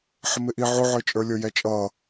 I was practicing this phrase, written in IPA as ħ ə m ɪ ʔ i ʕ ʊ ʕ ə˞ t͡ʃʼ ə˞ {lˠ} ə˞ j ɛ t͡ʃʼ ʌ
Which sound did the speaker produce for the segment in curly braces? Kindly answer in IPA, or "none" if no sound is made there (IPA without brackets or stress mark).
lʲ